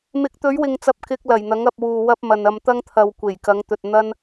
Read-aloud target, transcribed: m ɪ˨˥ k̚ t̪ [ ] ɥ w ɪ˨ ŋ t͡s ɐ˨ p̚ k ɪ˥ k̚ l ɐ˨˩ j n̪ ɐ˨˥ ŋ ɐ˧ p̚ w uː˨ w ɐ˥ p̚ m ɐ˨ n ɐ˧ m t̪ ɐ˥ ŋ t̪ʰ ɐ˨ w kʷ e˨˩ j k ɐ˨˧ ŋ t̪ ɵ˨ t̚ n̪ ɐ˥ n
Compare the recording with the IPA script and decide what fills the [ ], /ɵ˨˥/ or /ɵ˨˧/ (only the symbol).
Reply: ɵ˨˧